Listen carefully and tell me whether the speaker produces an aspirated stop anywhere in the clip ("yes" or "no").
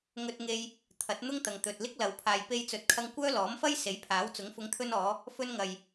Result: yes